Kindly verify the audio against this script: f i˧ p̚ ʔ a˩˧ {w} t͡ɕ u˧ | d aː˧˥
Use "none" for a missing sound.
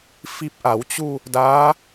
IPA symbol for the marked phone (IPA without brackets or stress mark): w